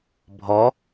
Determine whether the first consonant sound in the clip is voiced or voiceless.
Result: voiced